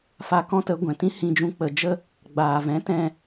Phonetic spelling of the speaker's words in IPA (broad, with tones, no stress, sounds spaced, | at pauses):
f a˧ k ɔ̃˦ t ə˨˦ ɡʷ ɛ̃˨ t ĩ˦ h ĩ˧ d͡ʒ ũ˧ k͡p ə˨ d͡ʒ ə˧ | ɡ͡b aː˨ v ɛ̃˨˦ t ɛ̃˧